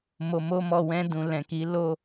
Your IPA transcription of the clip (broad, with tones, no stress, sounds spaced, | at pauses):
m o˨ m o˧ m ɔ˨ w ɛ̃˧ d ũ˨ l ɛ̃˨ k i˨˦ l o˦